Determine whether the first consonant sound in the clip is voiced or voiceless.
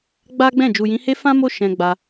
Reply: voiced